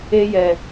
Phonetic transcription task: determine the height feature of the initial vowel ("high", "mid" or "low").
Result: mid